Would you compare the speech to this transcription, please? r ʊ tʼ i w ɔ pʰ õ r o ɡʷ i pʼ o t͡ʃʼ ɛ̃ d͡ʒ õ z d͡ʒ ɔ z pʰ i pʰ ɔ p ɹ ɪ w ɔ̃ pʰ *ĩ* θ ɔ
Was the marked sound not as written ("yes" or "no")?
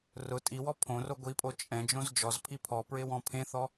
yes